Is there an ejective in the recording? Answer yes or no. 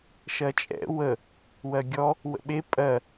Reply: yes